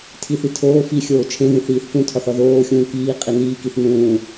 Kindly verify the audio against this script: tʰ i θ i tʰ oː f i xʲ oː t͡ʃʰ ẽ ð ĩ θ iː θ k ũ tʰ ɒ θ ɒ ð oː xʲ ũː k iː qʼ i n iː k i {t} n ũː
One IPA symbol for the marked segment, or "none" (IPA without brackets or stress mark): θ